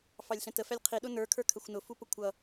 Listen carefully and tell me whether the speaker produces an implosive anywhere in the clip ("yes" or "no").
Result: yes